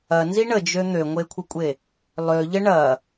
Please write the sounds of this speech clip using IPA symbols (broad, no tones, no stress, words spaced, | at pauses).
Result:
ɐnzi ɳəd͡ʒø n̪øŋʷekʷʰəkʷʼe | lˠøʎə ɳɐ